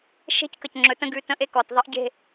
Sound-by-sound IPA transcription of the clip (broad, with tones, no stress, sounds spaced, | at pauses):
ʃ e̤˦ c k ə˨ c ŋ͡ǁ ɵ˨ t ə̃˦ ɡ ʉ˨ t ə̃˦ ʔ e˦ k ɔ˨ t ðˤ ə˦ ʔ ɟ e̤˦